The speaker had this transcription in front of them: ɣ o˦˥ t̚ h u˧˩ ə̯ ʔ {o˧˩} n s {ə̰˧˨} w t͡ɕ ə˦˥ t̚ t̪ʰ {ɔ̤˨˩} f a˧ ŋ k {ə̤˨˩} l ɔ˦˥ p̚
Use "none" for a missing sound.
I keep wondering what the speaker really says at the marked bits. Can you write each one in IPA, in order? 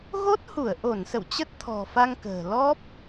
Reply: o˧˩, ə̰˧˨, ɔ̤˨˩, ə̤ː˨˩

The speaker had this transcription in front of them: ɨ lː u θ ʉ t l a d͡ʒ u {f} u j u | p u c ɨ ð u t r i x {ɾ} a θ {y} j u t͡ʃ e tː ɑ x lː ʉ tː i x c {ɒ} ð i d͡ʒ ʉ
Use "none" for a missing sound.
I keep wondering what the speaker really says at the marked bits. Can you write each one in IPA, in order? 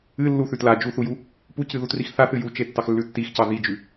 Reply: θ, θ, ɨ, ɑ

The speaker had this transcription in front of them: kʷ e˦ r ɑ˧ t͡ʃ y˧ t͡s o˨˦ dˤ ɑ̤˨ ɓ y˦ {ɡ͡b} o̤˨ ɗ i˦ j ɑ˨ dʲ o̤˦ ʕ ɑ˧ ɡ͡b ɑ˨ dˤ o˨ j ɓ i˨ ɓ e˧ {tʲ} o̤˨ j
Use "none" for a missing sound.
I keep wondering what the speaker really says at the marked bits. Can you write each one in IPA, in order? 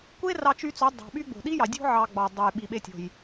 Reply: ɡ͡b, tʲ

